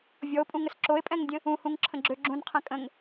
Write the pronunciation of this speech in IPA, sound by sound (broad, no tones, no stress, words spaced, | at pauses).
vʲɔo̯pʼũŋəs ǁoe̯pʼɛ̃ŋdʲə̃ | ũhũŋǁʰə̃ɡ͡ǁø ɡ͡ǁũnqʰɛ̃ kʼə̃ŋ